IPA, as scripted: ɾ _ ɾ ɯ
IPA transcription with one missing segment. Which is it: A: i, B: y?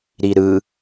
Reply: A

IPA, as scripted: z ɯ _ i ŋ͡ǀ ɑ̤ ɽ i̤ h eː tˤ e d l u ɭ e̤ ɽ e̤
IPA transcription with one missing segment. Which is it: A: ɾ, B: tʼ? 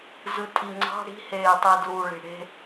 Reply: B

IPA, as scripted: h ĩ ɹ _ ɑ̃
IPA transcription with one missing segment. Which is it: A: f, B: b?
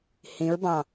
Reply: B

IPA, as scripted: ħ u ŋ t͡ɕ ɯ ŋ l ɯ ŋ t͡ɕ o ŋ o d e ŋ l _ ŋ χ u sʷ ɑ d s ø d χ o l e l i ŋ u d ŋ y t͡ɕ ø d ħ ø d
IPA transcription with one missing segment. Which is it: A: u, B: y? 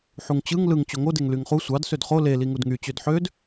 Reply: B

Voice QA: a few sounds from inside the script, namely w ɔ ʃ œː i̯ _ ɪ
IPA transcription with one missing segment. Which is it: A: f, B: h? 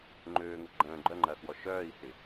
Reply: B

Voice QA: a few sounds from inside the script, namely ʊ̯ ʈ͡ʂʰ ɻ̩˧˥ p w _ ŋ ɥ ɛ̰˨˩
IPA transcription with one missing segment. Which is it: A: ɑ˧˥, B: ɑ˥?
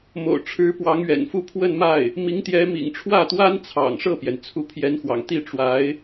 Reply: A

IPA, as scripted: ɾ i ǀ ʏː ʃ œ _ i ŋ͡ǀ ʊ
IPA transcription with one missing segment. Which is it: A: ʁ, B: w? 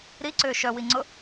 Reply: B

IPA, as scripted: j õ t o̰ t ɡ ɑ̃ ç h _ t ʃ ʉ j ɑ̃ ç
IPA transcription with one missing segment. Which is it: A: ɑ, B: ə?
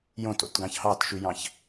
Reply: A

